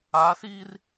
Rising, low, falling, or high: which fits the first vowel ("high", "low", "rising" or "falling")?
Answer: rising